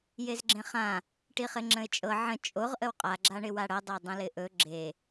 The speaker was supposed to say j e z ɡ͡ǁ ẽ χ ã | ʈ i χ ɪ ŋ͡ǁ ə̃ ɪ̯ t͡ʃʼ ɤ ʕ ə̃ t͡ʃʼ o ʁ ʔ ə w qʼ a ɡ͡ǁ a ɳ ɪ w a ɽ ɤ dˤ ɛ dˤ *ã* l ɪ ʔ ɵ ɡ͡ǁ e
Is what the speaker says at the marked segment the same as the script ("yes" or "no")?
no